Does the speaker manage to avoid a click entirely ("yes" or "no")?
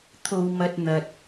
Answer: yes